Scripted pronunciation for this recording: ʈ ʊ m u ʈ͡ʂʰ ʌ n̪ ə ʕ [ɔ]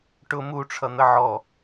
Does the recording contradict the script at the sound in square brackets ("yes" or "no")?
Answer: no